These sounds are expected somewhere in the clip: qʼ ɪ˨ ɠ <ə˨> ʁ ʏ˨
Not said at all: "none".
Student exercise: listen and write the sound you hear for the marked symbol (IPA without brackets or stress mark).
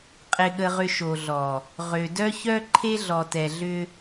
ə˨